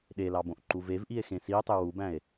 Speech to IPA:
ɗ e l ɑ b õ ʔ ǃ u v e v ʔ i e̯ x ẽ s i o̯ tˤ ø w u b æ̃ e̯

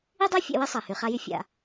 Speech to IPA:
i˥ dˤ æ˥ fʲ æ̰˦ w i˥ sˤ æ˩ h y˩ χ a˦ j y˦ fʲ a̰˨

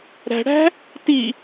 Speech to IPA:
ɾ æ̤ ɽ æ̤ | t i

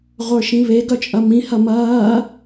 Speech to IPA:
ʁʷ ə˞ ʃ ĩ β e ɡ œ t͡ʃʼ ɐ m ĩ h ɐ m ɐː

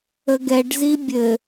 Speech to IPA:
ə ɡ ɛ ɖ z i bʲ ɘ

